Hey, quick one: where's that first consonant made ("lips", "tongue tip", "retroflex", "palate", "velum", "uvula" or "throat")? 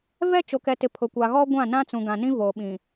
lips